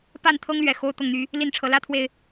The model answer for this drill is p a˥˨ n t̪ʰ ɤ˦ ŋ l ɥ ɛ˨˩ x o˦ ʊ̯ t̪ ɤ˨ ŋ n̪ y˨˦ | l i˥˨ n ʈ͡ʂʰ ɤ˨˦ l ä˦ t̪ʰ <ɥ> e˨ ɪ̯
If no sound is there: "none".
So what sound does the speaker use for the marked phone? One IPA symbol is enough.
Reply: w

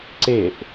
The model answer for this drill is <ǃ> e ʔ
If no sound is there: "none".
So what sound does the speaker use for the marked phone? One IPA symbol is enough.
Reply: ǀ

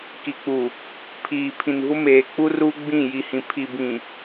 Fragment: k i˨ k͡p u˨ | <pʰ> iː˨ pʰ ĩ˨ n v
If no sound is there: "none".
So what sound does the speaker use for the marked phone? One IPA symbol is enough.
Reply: pʰ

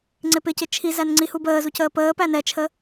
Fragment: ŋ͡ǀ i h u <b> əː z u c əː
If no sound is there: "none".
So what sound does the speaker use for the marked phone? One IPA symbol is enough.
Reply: b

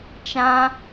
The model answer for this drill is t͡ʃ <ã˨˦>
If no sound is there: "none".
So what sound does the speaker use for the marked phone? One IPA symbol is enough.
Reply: ã˦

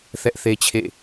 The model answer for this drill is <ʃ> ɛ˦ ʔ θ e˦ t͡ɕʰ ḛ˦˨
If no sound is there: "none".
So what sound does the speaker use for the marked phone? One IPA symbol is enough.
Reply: θ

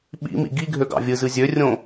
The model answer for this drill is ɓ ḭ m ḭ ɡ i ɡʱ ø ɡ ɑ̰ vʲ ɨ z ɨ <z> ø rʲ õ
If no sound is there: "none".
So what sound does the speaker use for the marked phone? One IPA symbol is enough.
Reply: zʲ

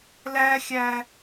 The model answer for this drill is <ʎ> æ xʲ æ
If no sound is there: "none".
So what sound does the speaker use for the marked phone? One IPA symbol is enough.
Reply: l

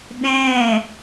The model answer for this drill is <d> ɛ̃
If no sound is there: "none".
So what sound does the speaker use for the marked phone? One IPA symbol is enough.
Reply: ɗ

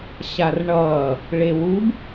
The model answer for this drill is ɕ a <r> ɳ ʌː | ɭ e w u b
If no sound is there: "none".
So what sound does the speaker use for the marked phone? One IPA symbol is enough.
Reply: r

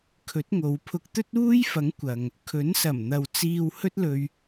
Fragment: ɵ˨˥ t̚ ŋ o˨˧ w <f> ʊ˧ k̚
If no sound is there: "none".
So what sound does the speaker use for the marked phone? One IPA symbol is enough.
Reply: pʰ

